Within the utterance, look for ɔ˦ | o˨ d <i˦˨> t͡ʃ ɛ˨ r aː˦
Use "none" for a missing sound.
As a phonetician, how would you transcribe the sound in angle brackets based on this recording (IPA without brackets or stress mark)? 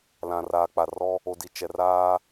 i˨